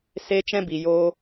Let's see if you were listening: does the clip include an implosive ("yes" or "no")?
no